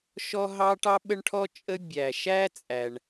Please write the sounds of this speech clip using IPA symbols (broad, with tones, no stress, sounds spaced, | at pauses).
ʃ ɔ˥ ɦ ɑ˥ ʈ ɑ˥ ɓ ə˥ ɳ ʈʰ ɔ˥ t͡ʃʼ ə˥ bʲ æ˧ ʃ æ˥ t͡sʼ æ˧ ɳ